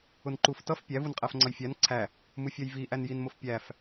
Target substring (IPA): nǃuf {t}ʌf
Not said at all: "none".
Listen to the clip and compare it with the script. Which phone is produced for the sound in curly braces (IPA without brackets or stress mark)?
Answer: t